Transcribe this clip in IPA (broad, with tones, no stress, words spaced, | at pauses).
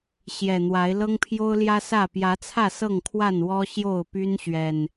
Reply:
ɕjɛ˨˩n̪wa˨˦ɪ̯ lɤ˦ŋpʰjo˦ʊ̯ljä˦sä˥˨ pjä˨˦t͡sʰä˥˨ sɤ˥˨ŋkʰwa˥˨n wɔ˦ɕjo˥˨ʊ̯py˦n ɕɥɛ˨˩n